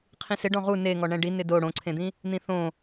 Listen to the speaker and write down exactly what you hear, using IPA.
qʰĩsɪ ɖɔ̃ʁu neŋɔ ɳɛ̃ɖi nɪdo ɽõǀʰẽd̪ĩ | n̪ĩθõ

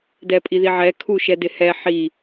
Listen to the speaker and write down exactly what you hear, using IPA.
dɛpʼiðiʕɛ kʰuʃɛdɪhɛ ħi

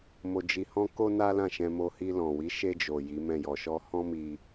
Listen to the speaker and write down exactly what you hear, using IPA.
mo˧d͡ʒi˧ hɔ̃˦ko˦na˦ lã˦˨ʃɛ̃˧ mo˧ hi˧lɔ̃˨wi˨˦ ʃe˧d͡ʒo˨ ji˨˦mɛ̃˦˨jɔ˧ʃɔ˦ hɔ̃˦mi˧

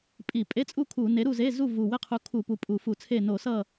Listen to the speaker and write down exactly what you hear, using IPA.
pʼi˧˩˧ pʼe˧˥˧t͡sʼu˥˨ kʰu˧˩˧ ne˨˥ ɾu˥˨ze˧˥˧ zu˥˨vu˨˩we˥˨qʰu˨˥ kʰu˧˩˧ pu˨˥pʼu˧˩˧fu˧˩˧t͡sʰe˥˨ no˧˩˧ sʌ˥˨

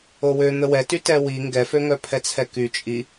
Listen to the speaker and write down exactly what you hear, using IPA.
owø n̪əwɛty tɛwi ŋɡɛføŋœ pʰɛt͡sʰɛky t͡ʃʼi

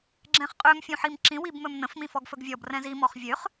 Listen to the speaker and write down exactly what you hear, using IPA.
ɡ͡ǁɛ̃χqʼøm fʲũħimǁĩ wibmɵmnə̃f mĩfɔɡfɵɡvʲɔb rɛ̃zi mɔχvʲøχ

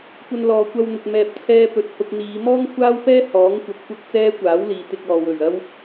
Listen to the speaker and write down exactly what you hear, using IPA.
kʷɐ˧nlɔː˨kʷɐ˧wn̪ʊ˨k̚ mɛː˨p̚t͡sʰɛː˧ pɵ˨t̚hʊ˧k̚n̪iː˨˧ mɔː˥ŋkʷʰaː˥wpɛː˥ hɔː˨˥ŋ kʷɐ˧p̚kʷɐ˥k̚t͡sɛː˥ kʷaː˨˥wliː˨ t̪ɪ˧k̚ɔː˨ wɵ˨˩ɥɐ˥w

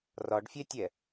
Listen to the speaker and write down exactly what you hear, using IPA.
rɒɖfʲɛtʲɛ

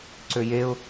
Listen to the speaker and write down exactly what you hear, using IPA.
ǀøjeʊ̯

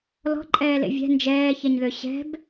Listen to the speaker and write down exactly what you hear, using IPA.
lɔ̤ǃʼɛːlḛ vʲɛ̤ nd͡ʒɛːçɛɲðø ɕɛ̤b

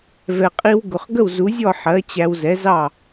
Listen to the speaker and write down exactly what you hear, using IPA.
vɛ˩qʼi˧wɡʊ˩χ ɡə˥˩wzu˩˥zʲɔ˥˩ ħɜ˩˥ t͡ɕæ˧wzɛ˩˥zɑ˥˩

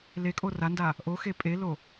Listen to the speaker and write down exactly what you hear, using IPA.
lekʼo randa | ʔoxe pʼelo

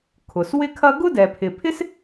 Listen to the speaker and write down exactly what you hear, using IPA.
kʰʊ˩s wɪ˥kʰɐ˥ ɡʊ˥dɛ˩pʰɪ˩pʰɪ˥s

